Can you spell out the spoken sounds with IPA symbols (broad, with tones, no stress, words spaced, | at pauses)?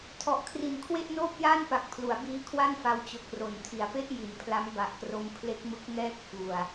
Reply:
tʰɔ˨˩ʔkʰri˨˩n kʰwe˥˩ʔnoː˥˩p̚ jaː˥˩npa˨˩k̚pʰlu˩˦a̯ biː˦˥kʰwa˥˩nfa˧w t͡ɕo˨˩k̚ro˩˦ntʰi˩˦a̯pe˥˩ʔ ji˨˩npʰla˦˥mba˨˩ʔkro˧m pʰle˦˥k̚mɯ˦˥k̚ŋɛː˥˩k̚ fu˨˩a̯